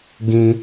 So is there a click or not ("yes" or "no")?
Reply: no